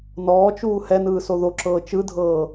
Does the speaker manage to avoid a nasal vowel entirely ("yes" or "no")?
yes